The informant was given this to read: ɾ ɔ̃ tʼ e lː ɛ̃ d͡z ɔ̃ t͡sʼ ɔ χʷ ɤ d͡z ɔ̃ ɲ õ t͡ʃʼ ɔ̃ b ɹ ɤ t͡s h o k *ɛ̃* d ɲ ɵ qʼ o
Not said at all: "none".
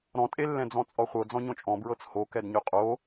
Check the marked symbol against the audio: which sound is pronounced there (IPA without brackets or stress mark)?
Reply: ɛ